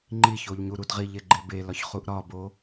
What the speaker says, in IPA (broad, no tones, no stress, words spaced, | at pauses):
ŋ͡ǃiçoʎ ɲuɾudʁiʎe ɡ͡ǃebelɒç χuʔɾɒbo